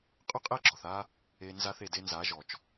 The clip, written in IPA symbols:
qʼʏ˦˨qʼe˦˨ɡ͡ǁɔ˨θa˧ | e˧ nza˧θe˨ de˧nza˨˦ʒɔ˨t͡ʃ

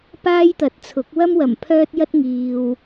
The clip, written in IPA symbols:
paː˥jt̪ɐ˨˥t̚t͡sʰʊ˨˥k̚ wɐ˥mwɐ˨˩m pʰœː˥t̚jɐ˥t̚ ŋiː˧w

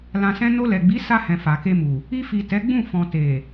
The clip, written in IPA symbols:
lã˧sɛ̃˦ no˧lɛ˨ɡ͡bi˨˦ sa˧hɛ̃˨ fa˨ke˧mu˨ | i˧fi˨ tɛ˨˦ɡ͡bũ˦˨ fɔ̃˨ te˨

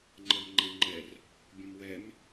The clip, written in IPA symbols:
ŋ͡ǃɜmŋ͡ǃɛ̃ŋ͡ǃɛr | bʲə̃mwɛm

